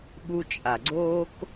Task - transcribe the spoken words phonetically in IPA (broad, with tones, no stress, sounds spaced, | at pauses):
ɓ u˧ t͡ʃʼ a˨ ɡ͡ǀ oː˦ k